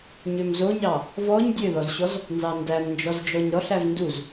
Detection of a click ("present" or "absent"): absent